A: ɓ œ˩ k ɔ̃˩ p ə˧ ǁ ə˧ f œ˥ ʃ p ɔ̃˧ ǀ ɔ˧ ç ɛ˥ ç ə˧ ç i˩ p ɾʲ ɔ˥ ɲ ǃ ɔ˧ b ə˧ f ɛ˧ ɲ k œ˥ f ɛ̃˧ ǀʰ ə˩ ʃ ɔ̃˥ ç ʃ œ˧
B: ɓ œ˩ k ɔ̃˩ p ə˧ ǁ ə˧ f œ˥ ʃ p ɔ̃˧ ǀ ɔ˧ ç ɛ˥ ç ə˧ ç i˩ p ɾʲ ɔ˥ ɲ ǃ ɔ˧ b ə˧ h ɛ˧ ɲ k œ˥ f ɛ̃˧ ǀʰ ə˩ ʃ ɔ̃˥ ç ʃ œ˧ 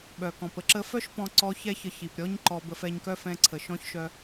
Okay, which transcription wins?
A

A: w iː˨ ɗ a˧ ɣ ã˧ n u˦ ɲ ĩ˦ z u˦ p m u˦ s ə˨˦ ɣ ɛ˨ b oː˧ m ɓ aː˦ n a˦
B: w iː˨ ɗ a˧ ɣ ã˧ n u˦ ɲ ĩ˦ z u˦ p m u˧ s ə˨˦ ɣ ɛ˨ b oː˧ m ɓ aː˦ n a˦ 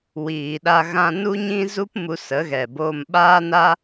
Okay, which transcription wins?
B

